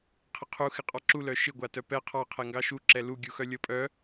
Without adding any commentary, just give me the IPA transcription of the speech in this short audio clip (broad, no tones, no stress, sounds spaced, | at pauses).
qʰ ɪ qʰ u x ɪ qʼ ɑ ǁ u l œ ʃ ɪ ɡʷ a t œ p ɛ qʰ ɑ qʰ ɛ ŋ ɡ ɑ ʃ u ǁ ɛ l u ɡʲ u x œ lʲ ɤ pʼ œ